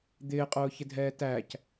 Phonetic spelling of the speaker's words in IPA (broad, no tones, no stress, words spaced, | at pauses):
d̪ɪːqʼʊːçɪdʱɛː tæc